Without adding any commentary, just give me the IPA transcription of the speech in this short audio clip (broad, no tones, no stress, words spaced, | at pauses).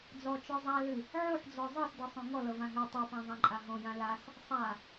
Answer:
d͡zɔt͡ʃɔ zˤa lɨ | ʕoħd͡zɔ zˤɤsdɤsˤõ ŋɔlɤvã ɦø tˤopãzˤãǃʼa ɦõjã las | sˤa